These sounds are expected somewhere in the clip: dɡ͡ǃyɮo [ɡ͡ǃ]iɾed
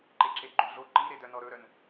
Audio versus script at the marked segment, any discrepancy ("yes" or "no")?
yes